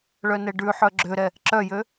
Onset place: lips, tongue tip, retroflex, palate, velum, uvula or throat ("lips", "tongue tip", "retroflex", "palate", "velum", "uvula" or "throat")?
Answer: retroflex